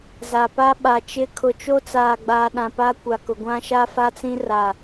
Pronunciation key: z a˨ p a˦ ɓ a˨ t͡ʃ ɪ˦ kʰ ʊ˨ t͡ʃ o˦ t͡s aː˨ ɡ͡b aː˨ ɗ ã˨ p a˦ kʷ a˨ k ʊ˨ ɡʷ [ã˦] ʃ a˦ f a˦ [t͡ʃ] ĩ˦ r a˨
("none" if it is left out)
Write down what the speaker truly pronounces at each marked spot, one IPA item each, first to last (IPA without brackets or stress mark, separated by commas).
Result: ã˦, t͡s